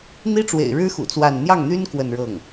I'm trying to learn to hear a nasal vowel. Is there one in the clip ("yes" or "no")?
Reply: no